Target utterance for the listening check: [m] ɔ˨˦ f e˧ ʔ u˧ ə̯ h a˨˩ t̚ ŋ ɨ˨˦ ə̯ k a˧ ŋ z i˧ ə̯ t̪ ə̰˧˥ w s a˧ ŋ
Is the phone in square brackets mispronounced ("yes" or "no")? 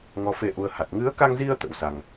yes